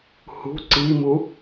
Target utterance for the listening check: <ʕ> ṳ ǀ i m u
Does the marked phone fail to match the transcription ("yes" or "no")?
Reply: yes